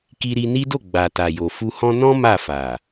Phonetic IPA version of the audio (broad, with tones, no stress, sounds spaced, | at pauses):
k i˧ ɾ i˧ n i˦ d o˦˨ ɡ͡b a˨ t a˨ j o˨ f u˧ h ɔ̃˦ n ɔ̃˦ m a˦˨ f a˨